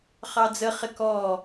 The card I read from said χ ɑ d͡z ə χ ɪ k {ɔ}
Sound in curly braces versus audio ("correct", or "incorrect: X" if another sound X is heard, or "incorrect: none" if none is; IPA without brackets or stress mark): correct